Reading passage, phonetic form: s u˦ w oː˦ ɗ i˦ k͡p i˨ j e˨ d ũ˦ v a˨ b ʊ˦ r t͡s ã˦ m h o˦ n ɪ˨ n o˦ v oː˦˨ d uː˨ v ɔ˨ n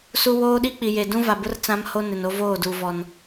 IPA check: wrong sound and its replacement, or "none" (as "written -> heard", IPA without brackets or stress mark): none